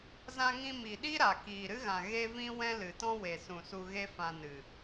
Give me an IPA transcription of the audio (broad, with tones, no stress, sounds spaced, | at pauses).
z ã˧ ŋ ĩ˧ m i˨ ɗ i˦ ɾ a˨ k iː˨ ɾ ɨ˦ ɣ ã˨ ɣ e˦ v ĩ˦ w ɛ̃˦ l ɨ˨ t ɔ̃˦ w e˨ s ũ˨ s u˧ ɣ e˦ f ã˧ n ɨ˨